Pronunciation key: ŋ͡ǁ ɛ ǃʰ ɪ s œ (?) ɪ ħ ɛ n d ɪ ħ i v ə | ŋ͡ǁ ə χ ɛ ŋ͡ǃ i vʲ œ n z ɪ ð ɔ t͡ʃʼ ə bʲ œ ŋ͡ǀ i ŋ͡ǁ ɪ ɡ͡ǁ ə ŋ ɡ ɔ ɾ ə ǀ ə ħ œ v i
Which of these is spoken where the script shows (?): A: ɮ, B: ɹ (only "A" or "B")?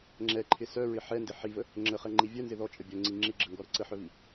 B